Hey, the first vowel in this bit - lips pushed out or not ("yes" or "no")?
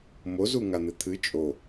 yes